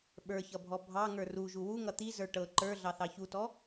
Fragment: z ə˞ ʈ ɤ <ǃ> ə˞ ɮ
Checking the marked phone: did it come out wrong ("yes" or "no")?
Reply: no